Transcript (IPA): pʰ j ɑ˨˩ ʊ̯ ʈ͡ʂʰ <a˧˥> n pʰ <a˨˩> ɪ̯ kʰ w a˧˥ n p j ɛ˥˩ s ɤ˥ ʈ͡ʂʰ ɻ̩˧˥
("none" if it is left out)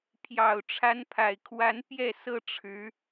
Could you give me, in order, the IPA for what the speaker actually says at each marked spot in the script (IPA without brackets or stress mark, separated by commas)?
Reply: a˧˥, a˨˩